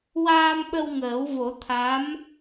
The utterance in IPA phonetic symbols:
w aː˧ m ɓ ə˧ w ŋ əː˨˩˦ w v o˨˩˦ t̪ʰ a˧˥ m

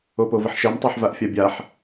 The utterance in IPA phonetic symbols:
o p o v ə ħ ʃ ɛ m tˤ a ħ v a ʔ fʲ a bʲ a ħ

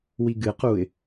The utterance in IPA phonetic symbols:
w i ɡ ɨ q uː ɪ̯

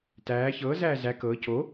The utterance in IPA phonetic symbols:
t æː ç ɤː z æː z æ k ɤː c o

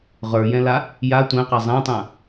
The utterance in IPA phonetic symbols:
ʁ ə˞ j ɛ̃ l a | j a tʷ ɛ̃ q a zˤ ã tˤ ã

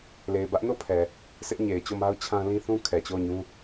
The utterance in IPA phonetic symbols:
l e˨ ɪ̯ b ä˦ ʔ n o˦˨ pʰ ɛ˨ | sʰ ɪ˦ ʔ ɲ e˨ ɪ̯ t͡ɕ o˦˨ m a˦ ʊ̯ t͡ɕʰ ã˦ l ĩ˦ θ ũ˦ kʰ ɛ˨ t͡ɕ o˦˨ ʊ̯ ɲ ũ˦

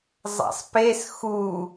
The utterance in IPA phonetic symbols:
zˤ a̰ sˤ p e s x u

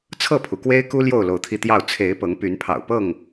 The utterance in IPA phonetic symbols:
t͡sʰ ɤ˥˨ pʰ u˩ k w e˦ ɪ̯ k u˦ l j o˥˨ ʊ̯ l o˨˦ ʊ̯ t̪ʰ i˧ t̪ j ɑ˥˨ ʊ̯ t͡sʰ e˨˦ ɪ̯ p ɤ˨˦ ŋ p y˨˦ n pʰ ɑ̰˨˩ ʊ̯ p ɤ˥˨ ŋ

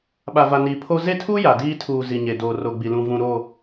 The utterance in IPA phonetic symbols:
ɓ a˨ v a˨ n iː˨ pʰ o˦ z e˦ tʰ u˦ j a˨ d iː˦ tʰ uː˨ z i˨ ɲ e˨ d oː˨ r o˨ ɡ͡b i˨ l ũ˨ v ũ˨ ɾ o˦˨

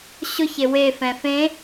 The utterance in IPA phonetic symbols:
ɕ ʊ ç e w e f ɛ̃ f ẽ

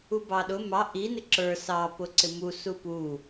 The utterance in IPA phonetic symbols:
u b ɑ ɗ ʊ m ɑ ʔ i n ɪ ǁ ə˞ s ɑ p ʊ ǀ ɪ m u s u p u

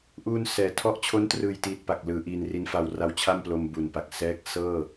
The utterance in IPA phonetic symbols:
ʔ uː˧ n s ɛː˨˩ tʰ ɔ˦˥ ʔ t͡ɕʰ o˦˥ n t r ɯː˨˩ j t iː˨˩ t̚ p a˨˩ k̚ l ɯː˩˦ ʔ iː˧ n r i˦˥ n f a˧ w r a˦˥ w t͡ɕʰ a˥˩ m p l o˧ m b u˨˩ n p a˨˩ k̚ s ɛː˦˥ k̚ s ɤː˥˩

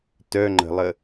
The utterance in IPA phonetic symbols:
t œ ŋ͡ǃ ə̤ lˠ ə

